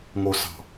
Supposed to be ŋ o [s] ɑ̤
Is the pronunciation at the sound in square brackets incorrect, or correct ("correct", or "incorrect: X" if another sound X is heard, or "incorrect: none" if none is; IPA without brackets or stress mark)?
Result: correct